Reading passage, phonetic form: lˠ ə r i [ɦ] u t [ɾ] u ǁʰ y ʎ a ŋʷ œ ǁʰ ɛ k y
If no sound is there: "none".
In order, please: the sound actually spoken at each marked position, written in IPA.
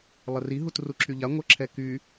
ɦ, r

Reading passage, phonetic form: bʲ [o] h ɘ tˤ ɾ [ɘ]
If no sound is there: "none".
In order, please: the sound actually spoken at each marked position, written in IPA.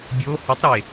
o, e

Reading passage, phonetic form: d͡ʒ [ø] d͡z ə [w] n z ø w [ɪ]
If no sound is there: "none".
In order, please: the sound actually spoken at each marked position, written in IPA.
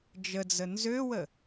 ə, none, ə

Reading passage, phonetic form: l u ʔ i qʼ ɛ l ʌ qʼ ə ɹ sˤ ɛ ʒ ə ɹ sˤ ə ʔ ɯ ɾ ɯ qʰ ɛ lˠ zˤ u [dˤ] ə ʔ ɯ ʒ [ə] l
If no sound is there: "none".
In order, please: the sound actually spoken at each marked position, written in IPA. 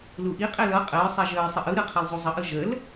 zˤ, ə

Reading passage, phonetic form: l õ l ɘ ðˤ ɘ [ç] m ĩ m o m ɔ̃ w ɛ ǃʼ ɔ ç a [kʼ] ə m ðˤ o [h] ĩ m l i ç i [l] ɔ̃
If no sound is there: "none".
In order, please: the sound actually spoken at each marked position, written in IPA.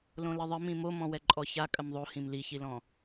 none, kʼ, h, l

